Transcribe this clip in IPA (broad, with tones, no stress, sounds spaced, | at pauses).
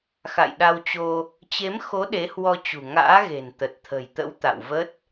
x a̰˧˨ j ɗ a˧ w t͡ɕ o˧ | t͡ɕ e˨˦ m x o˨˦ ɗ e˨˦ h w ɔ˧ t͡ɕ ṳ˨˩ ŋ a̰ː˧˥ ɣ e̤˨˩ n t̪ ə˨˩ t̚ t̪ʰ ə̤˨˩ j t̪ ə̰˧˥ w t̪ a̰˧˨ w v ə˦˥ t̚